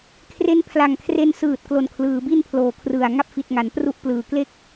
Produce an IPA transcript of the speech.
kʰ r e˦˥ n pʰ l a˨˩ ŋ kʰ r e˧ n s ɯː˨˩ t̚ k l o˨˩ n kʰ l ɯː˩˦ b i˥˩ n pʰ l oː˩˦ kʰ r ɯ˨˩ a̯ ŋ a˥˩ p̚ f i˨˩ t̚ ŋ a˩˦ n p r u˥˩ ʔ p l ɯː˩˦ k l e˥˩ k̚

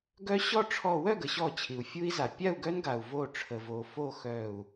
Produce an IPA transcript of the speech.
ɡ œ˦ ɕ ɔ˥˨ ʈ͡ʂʰ ɔ˧˩ w œ˥˨ ɡ ə˩ ɕ ɔ˧˩ t͡ɕʰ i˩ u̯ fʲ u˦ i̯ z a˩ pʲ a˥˨ u̯ ɡ œ˦ n ɡ a˩ u̯ v o˧˩ ʈ͡ʂʰ ə˩ v o˩ f o˥˨ x œ˧˩ u̯

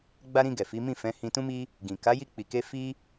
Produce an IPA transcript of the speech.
ɡ͡b a˧ ɾ ĩ˧ ɡ ɛ˨ f i˨˦ m ĩ˦˨ f ɛ̃˨˦ h ĩ˧ t ũ˦ m i˦ | ɡ ĩ˨ k a˨˦ j i˧ k͡p i˨ k e˧ f i˦

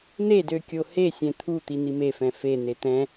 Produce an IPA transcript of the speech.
n̪ e d ø kʲ o h e sʲ ɛ̃ t̪ʰ u t̪ i n̪ i m e f ɛ̃ f e n̪ e t̪ ɛ̃

